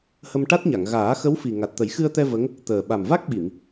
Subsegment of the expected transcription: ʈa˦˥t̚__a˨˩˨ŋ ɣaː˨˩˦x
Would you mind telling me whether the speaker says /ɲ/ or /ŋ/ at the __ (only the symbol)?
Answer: ɲ